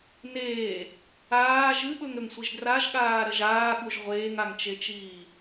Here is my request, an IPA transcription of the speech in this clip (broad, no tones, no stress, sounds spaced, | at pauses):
n eː | aː ʒ ɨ ɓ ɵ ŋ ɾ ɵ ŋ sʷ i ʒ d r a ʒ ɠ aː ɾ ɐ ʒ aː ɠ u ʒ ʁʷ eː ŋ a ŋ t͡ʃ e t͡ʃ iː